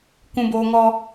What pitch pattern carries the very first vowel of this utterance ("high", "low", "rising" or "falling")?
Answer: low